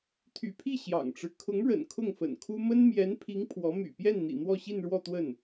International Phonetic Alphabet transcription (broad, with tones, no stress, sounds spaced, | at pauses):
t̪ʰ y̰˨˩ pʰ i˥˩ ɕ j ɑ̰˨˩ ŋ ʈ͡ʂ ɻ̩˦ kʰ ʊ˧˥ ŋ ɻ ə̰˨˩ n kʰ ʊ˥˩ ŋ f ə̰˨˩ n kʰ u˥ m ə˥ n m j ɛ˧˥ n pʰ i˧˥ ŋ pʰ w ɔ˧˥ m y̰˨˩ p j ɛ˥˩ n n̪ ḭ˨˩ n̪ w ɔ˥˧ ɕ i˥˧ n ɻ w ɔ˥˧ t̪ w ə˥˩ n